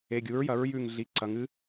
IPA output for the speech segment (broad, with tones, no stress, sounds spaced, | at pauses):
e˩˧˩ ɡʲ u˩˥ ɹ j ɐ˩˥ ɹ j ʉ˧˩ ŋ ɮ i˩˧˩ ǀ ɐ˩˧ ŋ ɨ˧˥